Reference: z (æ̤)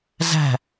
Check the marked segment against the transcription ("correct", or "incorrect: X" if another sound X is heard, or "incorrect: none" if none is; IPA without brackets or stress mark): correct